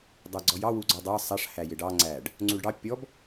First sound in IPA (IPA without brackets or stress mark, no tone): dˤ